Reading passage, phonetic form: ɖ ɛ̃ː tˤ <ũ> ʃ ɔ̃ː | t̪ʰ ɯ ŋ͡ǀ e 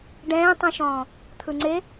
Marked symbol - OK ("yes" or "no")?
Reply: yes